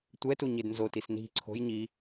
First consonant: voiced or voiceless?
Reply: voiceless